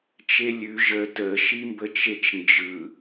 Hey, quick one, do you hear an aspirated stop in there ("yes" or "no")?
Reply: no